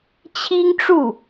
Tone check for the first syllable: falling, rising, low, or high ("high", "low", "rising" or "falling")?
high